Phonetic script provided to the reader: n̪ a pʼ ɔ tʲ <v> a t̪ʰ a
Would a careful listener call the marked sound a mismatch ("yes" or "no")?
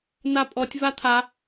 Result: no